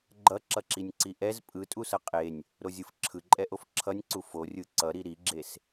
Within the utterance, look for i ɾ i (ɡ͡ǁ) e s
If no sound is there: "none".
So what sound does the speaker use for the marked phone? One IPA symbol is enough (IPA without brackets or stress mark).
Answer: ɡ͡ǁ